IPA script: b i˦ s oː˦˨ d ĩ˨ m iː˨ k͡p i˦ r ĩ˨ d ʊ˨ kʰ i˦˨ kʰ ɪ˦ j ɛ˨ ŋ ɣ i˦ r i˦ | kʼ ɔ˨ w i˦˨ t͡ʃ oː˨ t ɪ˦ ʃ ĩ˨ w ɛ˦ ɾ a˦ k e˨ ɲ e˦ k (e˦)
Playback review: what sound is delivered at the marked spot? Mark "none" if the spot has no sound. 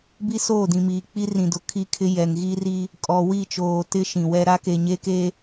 e˦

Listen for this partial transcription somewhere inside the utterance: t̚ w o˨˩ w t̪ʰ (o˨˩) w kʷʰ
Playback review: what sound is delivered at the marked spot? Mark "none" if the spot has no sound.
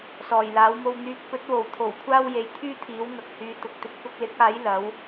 o˨˩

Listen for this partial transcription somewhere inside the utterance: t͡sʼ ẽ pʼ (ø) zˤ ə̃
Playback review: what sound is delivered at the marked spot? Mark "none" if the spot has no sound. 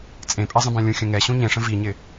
ɛ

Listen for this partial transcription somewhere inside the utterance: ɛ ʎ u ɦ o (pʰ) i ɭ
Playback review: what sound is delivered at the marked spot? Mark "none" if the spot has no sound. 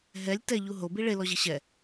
b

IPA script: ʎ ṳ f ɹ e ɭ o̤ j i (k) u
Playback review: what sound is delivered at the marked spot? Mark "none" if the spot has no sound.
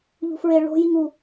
ŋ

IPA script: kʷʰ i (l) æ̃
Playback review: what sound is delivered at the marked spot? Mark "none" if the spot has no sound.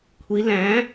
l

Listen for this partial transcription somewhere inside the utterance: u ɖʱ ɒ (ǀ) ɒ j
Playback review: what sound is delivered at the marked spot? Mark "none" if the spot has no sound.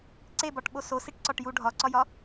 ǀ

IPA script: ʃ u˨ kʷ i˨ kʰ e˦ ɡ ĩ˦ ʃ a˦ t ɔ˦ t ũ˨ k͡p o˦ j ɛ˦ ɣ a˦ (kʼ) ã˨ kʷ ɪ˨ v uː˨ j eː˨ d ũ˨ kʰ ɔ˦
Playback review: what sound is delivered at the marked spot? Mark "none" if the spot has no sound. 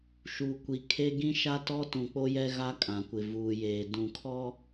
kʼ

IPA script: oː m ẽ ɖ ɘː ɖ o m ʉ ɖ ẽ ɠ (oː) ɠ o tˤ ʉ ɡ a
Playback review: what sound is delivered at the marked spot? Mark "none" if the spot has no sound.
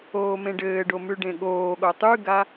oː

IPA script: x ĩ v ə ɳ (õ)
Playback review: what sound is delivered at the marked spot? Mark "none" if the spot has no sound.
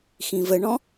ɔ̃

